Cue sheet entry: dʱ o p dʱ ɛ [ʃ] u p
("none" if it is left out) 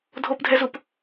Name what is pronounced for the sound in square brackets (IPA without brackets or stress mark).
z